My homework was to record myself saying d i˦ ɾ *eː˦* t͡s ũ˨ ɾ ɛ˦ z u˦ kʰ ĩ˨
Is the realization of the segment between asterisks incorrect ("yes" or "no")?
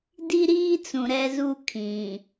yes